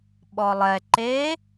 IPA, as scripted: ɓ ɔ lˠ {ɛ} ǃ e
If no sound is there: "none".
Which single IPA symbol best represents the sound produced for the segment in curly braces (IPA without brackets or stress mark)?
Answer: ɛ